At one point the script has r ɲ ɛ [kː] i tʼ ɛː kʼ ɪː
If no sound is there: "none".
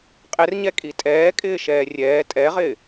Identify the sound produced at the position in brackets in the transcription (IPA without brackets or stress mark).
kʼ